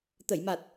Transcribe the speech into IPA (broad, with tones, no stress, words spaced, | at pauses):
t̪ə˨˩˨jma˨˩t̚